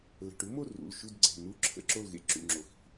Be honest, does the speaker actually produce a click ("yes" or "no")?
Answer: yes